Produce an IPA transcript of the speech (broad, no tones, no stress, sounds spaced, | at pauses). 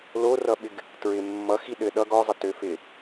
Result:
l o r ʌ ɓ ɪ ɡ | t ɹ ɪ mː ʌ x i ɗ ɘ ɗ ʌ ɡ ɔ zˤ ɪ t ø f ɪ